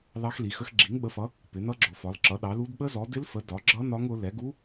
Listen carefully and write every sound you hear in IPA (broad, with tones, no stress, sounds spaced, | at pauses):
l ɑ˦˥ x l i˨˦ x ə˦˥ x ɡ͡ǁ i˨˦ ŋ ɓ ə˨˦ f ʌ˨˦ | p ɪ˨˦ n̪ ʌ˦˥ ɡ͡ǁ ʊ˨˦ f ɒ˨˦ l ǁ ʌ˨˦ ɗ ɑ˨˦ l u˦˥ d ɓ ə˦˥ z ɔ˨˦ d ɪ˦˥ l f ə˨˦ d ɒ˨˦ ɡ͡ǁ ʌ˦˥ n ɒ˦˥ ŋ ʊ˨˦ l ɛ˨˦ ɡ u˦˥